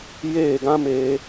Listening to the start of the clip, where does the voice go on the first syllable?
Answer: falling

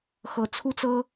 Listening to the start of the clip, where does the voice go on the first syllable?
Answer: rising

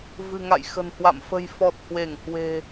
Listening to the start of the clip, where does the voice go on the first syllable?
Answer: low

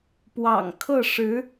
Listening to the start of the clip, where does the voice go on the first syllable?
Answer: low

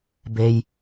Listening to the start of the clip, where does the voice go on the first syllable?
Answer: low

